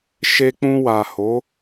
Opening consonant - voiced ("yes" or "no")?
no